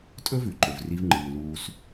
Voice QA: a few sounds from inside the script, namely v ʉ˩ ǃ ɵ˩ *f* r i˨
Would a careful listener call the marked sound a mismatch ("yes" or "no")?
yes